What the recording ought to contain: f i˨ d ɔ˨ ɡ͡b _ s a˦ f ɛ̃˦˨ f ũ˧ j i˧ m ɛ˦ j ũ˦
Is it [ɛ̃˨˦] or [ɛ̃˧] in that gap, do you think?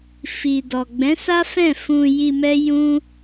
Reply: ɛ̃˨˦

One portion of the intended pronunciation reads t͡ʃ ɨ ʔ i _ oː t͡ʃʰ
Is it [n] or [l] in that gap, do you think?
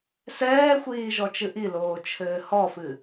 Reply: l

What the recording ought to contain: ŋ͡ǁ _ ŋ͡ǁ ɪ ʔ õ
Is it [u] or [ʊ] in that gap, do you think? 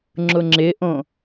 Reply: ʊ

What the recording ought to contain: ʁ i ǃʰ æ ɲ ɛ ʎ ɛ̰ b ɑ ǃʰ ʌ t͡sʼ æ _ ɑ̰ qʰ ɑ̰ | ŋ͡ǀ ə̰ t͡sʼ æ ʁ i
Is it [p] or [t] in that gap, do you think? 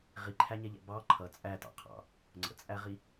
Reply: t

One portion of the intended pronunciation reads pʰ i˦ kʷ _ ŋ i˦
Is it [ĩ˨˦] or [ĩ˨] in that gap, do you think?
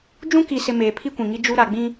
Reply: ĩ˨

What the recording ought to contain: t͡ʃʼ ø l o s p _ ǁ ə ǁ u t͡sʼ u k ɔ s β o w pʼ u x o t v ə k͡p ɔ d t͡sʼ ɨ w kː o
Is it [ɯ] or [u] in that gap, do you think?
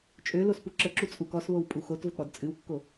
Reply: u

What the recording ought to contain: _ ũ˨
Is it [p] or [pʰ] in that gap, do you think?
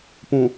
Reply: p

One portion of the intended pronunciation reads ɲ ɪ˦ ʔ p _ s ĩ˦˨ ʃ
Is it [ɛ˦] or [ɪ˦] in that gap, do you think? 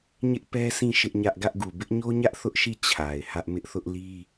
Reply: ɛ˦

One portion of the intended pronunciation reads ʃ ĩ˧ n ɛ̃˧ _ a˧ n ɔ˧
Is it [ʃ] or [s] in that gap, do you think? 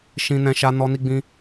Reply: ʃ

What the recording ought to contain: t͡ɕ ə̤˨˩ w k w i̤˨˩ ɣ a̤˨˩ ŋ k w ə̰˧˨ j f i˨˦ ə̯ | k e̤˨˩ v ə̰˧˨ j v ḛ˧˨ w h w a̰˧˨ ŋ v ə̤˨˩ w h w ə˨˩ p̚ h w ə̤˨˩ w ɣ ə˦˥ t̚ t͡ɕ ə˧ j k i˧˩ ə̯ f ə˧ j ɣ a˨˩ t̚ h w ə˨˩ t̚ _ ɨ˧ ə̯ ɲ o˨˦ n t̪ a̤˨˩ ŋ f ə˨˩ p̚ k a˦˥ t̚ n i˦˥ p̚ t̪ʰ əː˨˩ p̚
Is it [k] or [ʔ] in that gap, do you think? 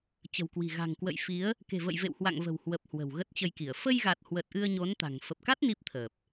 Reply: ʔ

